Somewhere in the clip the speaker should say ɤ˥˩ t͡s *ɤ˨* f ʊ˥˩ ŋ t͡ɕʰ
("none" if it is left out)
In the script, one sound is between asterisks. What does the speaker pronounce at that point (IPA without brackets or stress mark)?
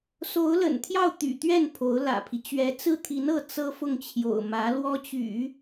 ɤ˥